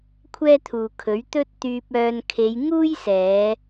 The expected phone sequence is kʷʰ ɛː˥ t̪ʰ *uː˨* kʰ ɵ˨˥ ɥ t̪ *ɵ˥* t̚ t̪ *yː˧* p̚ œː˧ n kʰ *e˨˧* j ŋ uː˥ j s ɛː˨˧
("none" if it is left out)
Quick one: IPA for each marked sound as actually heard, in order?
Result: uː˨, ɵ˥, yː˧, e˨˧

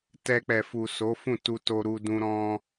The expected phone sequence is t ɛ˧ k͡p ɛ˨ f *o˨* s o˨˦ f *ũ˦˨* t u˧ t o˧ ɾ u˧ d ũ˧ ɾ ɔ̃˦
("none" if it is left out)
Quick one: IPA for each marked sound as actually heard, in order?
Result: u˨, ũ˦˨

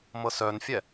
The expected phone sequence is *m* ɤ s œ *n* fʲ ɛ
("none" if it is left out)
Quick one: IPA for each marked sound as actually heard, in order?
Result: m, n

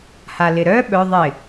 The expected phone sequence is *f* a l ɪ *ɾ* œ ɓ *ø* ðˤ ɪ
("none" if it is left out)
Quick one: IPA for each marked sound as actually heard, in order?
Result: h, ɾ, œ

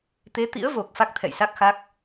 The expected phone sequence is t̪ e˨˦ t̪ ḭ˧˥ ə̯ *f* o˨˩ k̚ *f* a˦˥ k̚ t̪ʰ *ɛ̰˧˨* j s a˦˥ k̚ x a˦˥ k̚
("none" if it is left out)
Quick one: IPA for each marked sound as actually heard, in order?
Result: v, f, ɛ̰˧˨

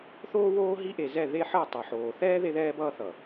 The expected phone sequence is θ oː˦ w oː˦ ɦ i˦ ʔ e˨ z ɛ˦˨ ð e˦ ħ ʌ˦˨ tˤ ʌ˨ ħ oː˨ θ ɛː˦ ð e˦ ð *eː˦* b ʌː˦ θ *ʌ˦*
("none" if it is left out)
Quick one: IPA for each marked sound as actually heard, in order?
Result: ɛː˦, ʌ˨

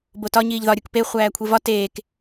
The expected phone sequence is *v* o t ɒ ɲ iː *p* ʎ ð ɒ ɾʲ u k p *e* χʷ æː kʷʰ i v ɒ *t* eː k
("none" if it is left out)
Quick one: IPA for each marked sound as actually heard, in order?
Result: b, none, e, t

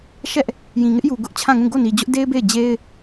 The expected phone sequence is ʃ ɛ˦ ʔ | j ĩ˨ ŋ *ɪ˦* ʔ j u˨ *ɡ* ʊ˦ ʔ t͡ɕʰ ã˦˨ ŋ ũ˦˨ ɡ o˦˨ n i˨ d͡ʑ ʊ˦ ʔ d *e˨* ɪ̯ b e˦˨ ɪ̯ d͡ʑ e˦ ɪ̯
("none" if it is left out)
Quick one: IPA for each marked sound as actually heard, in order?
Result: ɪ˦, ɡ, e˦

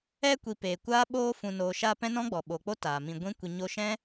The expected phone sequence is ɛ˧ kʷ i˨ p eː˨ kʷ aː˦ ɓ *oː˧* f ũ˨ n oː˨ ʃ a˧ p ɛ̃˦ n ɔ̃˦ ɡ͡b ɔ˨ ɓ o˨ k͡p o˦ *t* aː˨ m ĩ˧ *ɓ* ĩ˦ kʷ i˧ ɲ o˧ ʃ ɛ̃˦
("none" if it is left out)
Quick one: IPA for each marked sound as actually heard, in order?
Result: oː˧, t, ɡʷ

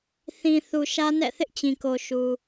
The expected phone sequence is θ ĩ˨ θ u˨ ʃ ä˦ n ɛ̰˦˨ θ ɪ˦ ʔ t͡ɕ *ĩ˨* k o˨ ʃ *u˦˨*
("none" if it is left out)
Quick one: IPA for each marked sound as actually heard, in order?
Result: ĩ˨, u˨

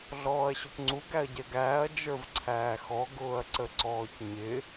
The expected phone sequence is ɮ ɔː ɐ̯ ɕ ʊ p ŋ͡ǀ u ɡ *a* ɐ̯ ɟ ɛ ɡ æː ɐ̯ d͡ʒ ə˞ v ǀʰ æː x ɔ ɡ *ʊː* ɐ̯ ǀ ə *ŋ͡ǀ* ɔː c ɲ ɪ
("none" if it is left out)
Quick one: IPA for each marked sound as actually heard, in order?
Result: æ, ʊː, ǀ

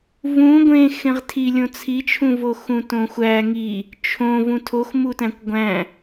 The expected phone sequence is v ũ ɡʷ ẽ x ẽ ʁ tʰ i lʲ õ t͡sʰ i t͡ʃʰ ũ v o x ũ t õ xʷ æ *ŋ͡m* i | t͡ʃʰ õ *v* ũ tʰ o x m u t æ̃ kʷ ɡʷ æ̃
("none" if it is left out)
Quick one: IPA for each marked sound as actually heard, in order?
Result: ŋ, v

